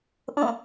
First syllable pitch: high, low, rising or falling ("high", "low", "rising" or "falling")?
falling